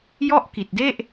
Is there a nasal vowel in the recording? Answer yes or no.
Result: no